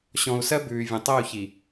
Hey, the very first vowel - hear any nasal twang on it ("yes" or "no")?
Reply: yes